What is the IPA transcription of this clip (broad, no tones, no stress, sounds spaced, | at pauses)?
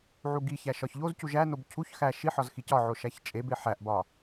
ʕ u ɡ i ç æ ʃ ɒ ç ʎ o z c u ʒ æ n o b cʰ u ç x æ ʃ i ħ ɒ z x i c ɒ ʕ o ʃ æ ç t͡ʃʼ e b e ħ æ ʔ b ɒ